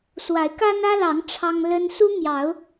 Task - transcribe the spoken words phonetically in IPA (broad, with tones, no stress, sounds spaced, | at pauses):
s w a˨˦ ɪ̯ k a˦ n ä˦ l ɑ˨˦ ŋ ʈ͡ʂʰ ɑ˦ ŋ l ə˦ n s u˦ m j ɑ˨˦ ʊ̯